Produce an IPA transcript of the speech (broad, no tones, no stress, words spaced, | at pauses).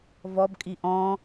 vɔbkʼi ʔɔ̃